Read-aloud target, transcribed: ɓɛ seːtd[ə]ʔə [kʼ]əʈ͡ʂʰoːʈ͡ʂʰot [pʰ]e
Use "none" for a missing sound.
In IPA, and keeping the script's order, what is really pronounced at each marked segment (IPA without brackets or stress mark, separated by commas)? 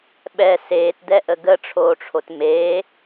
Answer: ɛ, ɡ, m